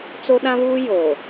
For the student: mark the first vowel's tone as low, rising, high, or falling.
high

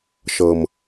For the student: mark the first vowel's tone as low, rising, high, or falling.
low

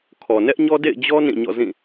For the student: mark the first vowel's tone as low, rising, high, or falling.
low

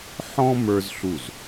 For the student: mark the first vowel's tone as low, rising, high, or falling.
high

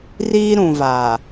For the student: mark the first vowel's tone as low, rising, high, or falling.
high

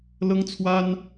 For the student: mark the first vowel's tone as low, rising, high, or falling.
high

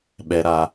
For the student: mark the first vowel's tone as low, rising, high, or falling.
low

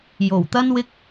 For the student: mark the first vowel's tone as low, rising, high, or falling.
low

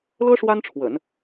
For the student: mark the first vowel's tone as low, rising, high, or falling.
high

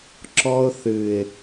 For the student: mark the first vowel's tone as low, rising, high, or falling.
high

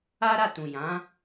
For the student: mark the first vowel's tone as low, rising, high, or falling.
high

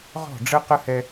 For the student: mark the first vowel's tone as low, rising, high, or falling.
falling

